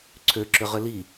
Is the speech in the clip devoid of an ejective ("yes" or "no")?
yes